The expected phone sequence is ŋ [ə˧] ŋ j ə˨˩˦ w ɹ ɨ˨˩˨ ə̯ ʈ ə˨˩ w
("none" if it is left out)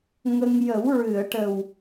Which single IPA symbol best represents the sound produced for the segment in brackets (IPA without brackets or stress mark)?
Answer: ə˧